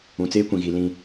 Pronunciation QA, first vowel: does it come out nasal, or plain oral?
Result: nasal